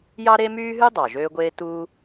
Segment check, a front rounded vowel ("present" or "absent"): present